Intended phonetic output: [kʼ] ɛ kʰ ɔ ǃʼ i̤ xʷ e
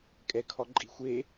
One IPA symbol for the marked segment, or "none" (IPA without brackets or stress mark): kʼ